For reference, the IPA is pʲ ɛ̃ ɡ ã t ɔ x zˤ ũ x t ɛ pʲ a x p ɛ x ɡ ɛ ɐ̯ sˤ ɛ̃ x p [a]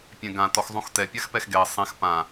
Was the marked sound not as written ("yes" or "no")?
yes